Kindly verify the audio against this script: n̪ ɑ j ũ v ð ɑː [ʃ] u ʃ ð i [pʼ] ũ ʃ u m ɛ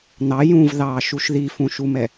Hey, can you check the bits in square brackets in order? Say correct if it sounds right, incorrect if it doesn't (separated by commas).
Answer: correct, incorrect